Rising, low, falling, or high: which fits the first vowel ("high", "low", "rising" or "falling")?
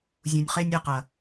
low